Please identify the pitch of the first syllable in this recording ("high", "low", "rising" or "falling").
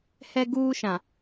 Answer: high